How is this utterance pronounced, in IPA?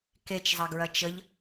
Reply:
k e t͡ʃ zˤ ɐ ɡ ɹ ɐ t͡ʃ ə ʎ

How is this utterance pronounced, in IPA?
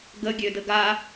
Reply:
ɡ ə ɡʲ ø d ə ɡ a

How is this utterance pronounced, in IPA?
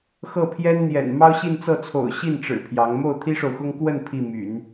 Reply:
x ɤ˥˩ pʰ j ɛ˥ n n̪ j ɛ̰˨˩ n m ɑ˥ ʊ̯ ɕ i˥˧ n t͡s ɤ˥˩ t͡sʰ o̰˨˩ ʊ̯ ɕ i˥˩ n ʈ͡ʂ ɻ̩˨˩ pʰ j ɑ˧˥ ŋ m o˥˩ ʊ̯ t̪ʰ i˥ ʂ o˨ ʊ̯ x ʊ˥ ŋ k w ə˥˧ n pʰ i˥˩ m y̰˨˩˦ n

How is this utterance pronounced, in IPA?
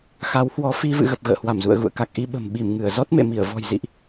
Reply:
x a˨˦ w h w ɔ˨˦ f i˧ v ɨ̰˧˨ ɣ ə˨˩ p̚ ɣ ə̰ː˧˨ h w a˧˩ m z ṵ˧˨ ə̯ ɣ ṵ˧˨ ə̯ k a˨˩ k̚ ʔ i˧ ɓ ə̤˨˩ m ɓ i˧˩ m ŋ ɨ˧˩ ə̯ z ɔ˦˥ t̚ m ḛ˧˨ m i˧˩ ə̯ v ɔ̤˨˩ j z ḭ˧˨ ʔ

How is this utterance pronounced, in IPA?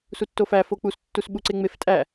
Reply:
s u tː o f æ f o k͡p u s tː u s ɓ u ǀ e ŋ͡m e f tʼ æ

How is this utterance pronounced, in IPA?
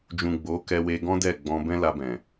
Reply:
d͡ʒ ũ˨ ɡ͡b o˨˦ k ɛ˧ w e˧ ɡ ɔ̃˦ d ɛ˦˨ ɡ͡b ɔ̃˧ b ɛ̃˦ l a˧ b ɛ̃˨

